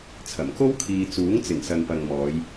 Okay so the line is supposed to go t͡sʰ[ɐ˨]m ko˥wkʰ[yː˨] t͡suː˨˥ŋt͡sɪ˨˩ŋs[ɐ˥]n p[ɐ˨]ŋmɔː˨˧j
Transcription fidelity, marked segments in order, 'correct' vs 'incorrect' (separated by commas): incorrect, incorrect, incorrect, correct